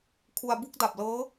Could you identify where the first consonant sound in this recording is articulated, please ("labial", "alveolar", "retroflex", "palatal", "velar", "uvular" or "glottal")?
velar